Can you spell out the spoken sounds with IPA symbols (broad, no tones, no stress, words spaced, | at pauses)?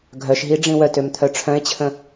ɡʱœʃɦi ɖ͡ʐĩwœtøm t̪ʰœʈ͡ʂʰœ̃e̯t͡ɕʰə̃